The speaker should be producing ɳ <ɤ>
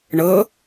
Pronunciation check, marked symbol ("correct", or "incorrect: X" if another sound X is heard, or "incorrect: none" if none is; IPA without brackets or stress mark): correct